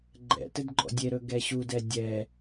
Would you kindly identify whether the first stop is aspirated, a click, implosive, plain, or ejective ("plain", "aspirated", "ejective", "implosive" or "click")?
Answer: click